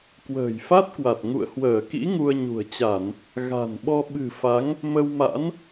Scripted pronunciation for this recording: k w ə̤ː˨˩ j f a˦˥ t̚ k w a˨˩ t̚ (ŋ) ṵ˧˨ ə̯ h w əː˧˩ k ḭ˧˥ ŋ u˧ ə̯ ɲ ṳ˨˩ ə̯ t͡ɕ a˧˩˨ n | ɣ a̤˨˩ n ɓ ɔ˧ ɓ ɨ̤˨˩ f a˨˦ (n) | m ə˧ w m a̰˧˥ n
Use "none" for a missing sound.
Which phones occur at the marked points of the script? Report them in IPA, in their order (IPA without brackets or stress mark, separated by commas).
ŋ, ŋ